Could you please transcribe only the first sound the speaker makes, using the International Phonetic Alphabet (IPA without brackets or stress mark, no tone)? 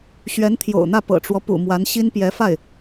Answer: ɕ